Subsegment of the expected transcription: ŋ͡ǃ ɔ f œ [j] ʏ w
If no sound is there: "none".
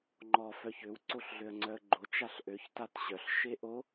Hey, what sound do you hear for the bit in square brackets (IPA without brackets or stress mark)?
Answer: ç